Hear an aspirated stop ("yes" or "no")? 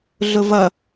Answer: no